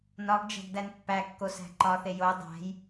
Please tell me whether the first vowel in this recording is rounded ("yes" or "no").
yes